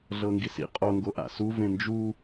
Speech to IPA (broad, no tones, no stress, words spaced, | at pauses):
ɮɤŋɡisḭ qʼoŋɡo ʔa̰su vẽnd͡ʒu